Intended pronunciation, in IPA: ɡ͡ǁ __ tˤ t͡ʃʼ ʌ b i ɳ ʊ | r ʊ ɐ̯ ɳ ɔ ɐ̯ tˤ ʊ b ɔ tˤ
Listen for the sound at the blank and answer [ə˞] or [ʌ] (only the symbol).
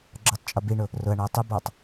ə˞